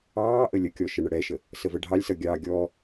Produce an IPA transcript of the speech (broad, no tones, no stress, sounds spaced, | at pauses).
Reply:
ɑː ʔ ə lʲ ə kʲ ɔ ʃ ə ɳ ə ɽ ɛ ʃ ə | s ə v ə ɖʱ ɑ lʲ s ʌ ɡʲ ɑ ɡʲ ɔ